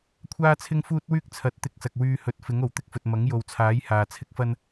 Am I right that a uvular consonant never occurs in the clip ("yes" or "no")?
yes